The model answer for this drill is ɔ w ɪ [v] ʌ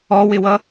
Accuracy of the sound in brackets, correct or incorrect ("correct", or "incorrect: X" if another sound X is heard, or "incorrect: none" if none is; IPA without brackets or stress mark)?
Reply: incorrect: w